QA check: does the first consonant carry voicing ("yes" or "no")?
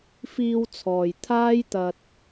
no